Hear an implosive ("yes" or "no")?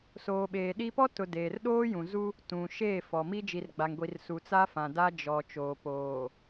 yes